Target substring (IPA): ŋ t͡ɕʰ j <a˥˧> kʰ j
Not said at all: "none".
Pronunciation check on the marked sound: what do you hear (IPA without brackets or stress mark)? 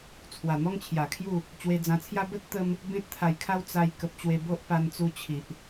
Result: a˨˩